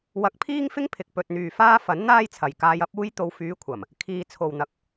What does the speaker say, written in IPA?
w ɐ˨˥ k̚ pʰ iː˥ ŋ f ɪ˥ ŋ pʰ ɪ˨ k̚ p ɵ˨ t̚ n̪ yː˨ f aː˥ f ɐ˨˥ n n̪ aː˥ j t͡sʰ ɐ˨ j k aː˧ j ɐ˥ p̚ uː˥ j t̪ o˧ w f yː˨˧ kʷʰ ɐ˨˩ m | kʰ iː˨ t͡sʰ o˨ w n̪ ɐ˨ k̚

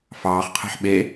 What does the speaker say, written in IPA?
f ɑː χ qʰ ɛ̤ ħ ɓ e

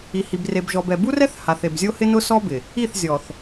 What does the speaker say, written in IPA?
i˨ h i˨ b r e˨ b ʒ ɔ˨ b ɛ˨ b u˦ r ɛ˦ θ h a˨ θ e˨ b zʲ o˦ h ɪ˦ n ʊ˦ s ɔ˦ b ɪ˨ | i˦˨ θ zʲ ɔ˨ θ

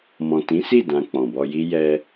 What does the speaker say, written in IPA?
m ɔ̃˨ t ĩ˨˦ s i˦˨ d ã˧ k͡p ɔ̃˨ b ɔ˧ j i˦ j ɛ˧

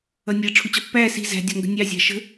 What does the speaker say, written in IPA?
ʌ nʲ ɛ ʈ͡ʂʰ u t͡ɕ ɒ pː æː s i̤ z æ̤ dʲ ɒ ŋ ɡ ə̤ nʲ ɑ zʲ ɑ̤ ʃ ə̤

